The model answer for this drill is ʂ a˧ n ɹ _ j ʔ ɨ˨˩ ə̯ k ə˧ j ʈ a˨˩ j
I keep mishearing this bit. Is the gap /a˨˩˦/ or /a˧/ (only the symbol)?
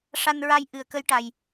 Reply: a˧